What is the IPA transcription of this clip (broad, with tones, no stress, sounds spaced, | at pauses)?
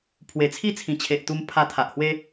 pʰ w e˨˩ t͡sʰ i˥˧ t͡sʰ ĩ˨˩ t͡ɕʰ e˨ ʔ t̪ u˧ m pʰ a˧ t̪ʰ a˨ ʔ h w e˦